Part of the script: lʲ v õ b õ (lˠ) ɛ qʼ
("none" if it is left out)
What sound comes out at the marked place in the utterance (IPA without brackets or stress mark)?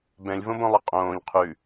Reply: lˠ